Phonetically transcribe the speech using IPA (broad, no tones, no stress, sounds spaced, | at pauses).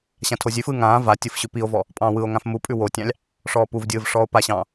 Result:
ɕ ã tʰ o zʲ ʉ f ɯː ŋ ãː v a tʲ ɯ f ɕ ʉ p i o̯ v ɔ | pʼ ɑ̃ː w ɯ o̯ ŋ ã f m u pʼ ʉ w o tʲ ɑ̃ lʲ | ʂ ɔː p u v dʲ ɯː v ʂ ɔː o̯ p a ɕ ɑ̃ː